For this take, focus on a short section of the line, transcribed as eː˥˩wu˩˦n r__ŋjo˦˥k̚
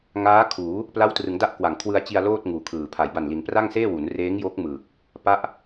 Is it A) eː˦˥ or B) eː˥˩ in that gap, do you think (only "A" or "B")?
A